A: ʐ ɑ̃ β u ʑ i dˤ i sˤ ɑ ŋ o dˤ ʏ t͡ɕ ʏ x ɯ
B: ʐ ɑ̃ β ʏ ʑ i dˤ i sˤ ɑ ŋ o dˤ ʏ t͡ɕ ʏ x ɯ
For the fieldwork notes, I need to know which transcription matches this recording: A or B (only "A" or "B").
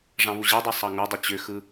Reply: A